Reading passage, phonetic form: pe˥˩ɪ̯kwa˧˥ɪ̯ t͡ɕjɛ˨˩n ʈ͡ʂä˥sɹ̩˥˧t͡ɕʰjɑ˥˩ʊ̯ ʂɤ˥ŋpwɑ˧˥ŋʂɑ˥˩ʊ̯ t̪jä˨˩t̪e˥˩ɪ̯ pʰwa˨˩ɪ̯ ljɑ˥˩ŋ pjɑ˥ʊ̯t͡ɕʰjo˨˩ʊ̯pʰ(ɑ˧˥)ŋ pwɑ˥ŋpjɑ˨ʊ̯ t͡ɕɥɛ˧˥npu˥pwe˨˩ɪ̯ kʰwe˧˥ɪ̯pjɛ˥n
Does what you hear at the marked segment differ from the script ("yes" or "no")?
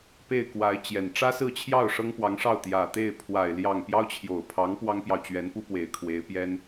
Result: no